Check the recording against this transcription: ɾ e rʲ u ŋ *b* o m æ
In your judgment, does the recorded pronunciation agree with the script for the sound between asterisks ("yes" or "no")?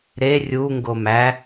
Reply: no